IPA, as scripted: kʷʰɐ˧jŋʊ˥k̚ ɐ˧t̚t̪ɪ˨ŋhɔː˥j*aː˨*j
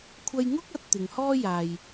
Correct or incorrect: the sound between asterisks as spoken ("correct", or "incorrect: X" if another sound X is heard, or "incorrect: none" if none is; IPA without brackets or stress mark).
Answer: correct